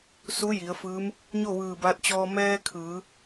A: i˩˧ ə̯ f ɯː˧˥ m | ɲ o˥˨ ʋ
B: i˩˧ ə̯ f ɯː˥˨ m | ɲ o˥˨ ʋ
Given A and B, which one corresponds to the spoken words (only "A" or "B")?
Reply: A